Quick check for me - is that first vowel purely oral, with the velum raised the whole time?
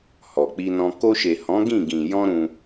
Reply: yes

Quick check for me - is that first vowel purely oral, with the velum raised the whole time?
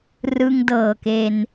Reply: yes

